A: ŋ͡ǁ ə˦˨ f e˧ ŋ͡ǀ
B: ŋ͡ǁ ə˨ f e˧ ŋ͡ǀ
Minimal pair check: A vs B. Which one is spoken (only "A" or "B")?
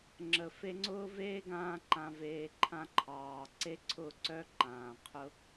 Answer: B